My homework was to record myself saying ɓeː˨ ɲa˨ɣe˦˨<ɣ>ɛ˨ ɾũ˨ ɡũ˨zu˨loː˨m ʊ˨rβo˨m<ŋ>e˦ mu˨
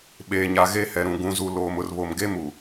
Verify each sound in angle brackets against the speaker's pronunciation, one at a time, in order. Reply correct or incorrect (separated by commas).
incorrect, incorrect